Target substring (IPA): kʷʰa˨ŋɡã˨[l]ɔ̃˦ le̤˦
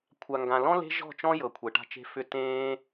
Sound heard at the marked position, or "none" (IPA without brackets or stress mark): l